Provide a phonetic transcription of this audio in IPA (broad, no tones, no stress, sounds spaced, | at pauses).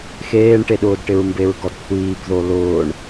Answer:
x eː ɳ ʈ e ɗ ʊː d ʈ ɪ ɹ m b e ɹ ɡ ɔ d kʷʰ iː b ð o l ʊː ɳ